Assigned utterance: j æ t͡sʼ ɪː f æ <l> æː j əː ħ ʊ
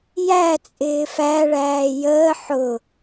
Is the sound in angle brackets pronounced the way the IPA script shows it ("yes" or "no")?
no